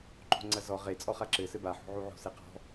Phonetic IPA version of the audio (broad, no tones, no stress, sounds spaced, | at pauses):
ǃ o̤ ŋ͡ǀ ɐ z ɔ ʁ e t͡sʼ ɔ χ a ǁ ɘ s ɘ b a ħ o̤ ʕ u ʕ o̤ s e q ɔ̤